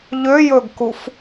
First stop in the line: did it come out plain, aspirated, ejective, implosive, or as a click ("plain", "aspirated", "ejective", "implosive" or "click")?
plain